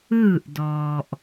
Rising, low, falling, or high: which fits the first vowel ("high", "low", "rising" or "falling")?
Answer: falling